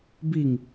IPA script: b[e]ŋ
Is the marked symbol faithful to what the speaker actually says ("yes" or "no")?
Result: no